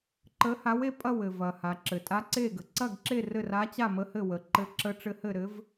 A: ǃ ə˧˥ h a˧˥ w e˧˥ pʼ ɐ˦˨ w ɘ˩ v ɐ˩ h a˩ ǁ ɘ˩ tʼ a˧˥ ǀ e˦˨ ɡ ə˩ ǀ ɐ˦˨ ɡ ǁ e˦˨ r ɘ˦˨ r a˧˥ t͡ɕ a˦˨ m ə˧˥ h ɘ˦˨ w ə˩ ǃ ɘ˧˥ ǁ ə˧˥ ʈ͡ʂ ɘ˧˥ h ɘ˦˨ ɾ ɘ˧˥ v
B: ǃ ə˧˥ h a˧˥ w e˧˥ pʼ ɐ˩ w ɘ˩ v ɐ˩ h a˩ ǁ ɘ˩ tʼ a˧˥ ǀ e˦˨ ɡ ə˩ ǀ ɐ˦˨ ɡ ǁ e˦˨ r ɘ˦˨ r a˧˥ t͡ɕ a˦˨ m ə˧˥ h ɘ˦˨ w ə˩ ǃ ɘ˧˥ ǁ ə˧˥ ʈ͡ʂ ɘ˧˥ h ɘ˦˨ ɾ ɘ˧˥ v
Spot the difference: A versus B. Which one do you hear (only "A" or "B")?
A